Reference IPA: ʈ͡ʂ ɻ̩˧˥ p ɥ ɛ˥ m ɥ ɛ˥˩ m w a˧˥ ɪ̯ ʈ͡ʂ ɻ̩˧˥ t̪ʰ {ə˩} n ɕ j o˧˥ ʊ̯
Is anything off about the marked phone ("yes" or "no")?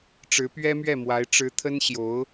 yes